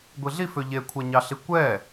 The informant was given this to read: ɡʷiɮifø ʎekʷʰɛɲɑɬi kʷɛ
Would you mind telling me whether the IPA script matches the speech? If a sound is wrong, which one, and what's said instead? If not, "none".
none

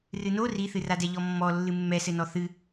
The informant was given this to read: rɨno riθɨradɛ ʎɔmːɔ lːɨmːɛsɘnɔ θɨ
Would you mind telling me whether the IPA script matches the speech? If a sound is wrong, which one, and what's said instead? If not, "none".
none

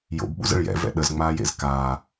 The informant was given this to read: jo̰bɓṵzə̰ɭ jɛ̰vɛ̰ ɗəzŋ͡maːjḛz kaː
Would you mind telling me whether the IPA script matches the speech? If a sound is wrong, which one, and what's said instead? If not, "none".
none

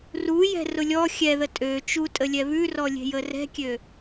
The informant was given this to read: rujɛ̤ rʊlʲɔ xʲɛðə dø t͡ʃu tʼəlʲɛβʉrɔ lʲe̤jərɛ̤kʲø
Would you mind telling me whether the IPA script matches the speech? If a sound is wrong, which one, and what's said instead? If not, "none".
d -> tʼ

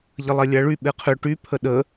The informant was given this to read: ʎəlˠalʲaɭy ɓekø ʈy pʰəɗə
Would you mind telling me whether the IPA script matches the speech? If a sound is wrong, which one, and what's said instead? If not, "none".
k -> qʰ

